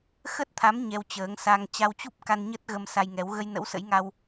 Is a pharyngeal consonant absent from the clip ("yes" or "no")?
yes